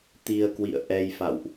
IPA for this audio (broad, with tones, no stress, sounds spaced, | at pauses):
t̪ i˧ ə̯ k w ḭ˧˨ ə̯ ʔ ɛ˧ j f a̰˧˨ w ʔ